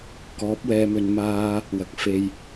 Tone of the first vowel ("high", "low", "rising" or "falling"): rising